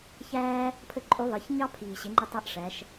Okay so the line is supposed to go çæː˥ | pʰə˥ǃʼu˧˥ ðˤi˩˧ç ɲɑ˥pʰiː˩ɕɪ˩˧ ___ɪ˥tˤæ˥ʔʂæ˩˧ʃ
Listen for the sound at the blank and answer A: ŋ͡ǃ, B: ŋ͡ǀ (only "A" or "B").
A